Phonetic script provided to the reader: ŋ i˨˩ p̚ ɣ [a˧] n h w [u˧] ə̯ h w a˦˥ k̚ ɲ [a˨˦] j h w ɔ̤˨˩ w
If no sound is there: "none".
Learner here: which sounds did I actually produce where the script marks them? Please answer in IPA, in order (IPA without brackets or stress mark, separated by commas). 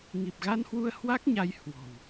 a˧, u˧, a˨˦